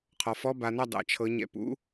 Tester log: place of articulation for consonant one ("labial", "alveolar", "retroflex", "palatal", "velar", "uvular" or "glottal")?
uvular